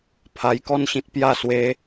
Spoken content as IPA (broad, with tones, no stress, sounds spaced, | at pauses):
pʰ a˧ j k ɔ˥˧ n ɕ ĩ˦ t̚ p j a˥˧ s w e˦